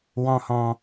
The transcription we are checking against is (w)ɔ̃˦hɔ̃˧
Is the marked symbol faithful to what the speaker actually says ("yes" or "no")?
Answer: yes